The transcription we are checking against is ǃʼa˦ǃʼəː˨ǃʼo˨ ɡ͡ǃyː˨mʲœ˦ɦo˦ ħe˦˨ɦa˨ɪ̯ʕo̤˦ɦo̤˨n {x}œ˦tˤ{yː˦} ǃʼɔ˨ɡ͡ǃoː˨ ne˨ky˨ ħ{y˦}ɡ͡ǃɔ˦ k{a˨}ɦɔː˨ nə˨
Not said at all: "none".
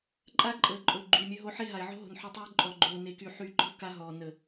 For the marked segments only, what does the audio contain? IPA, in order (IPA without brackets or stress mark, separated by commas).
ħ, yː˦, y˨˦, a˦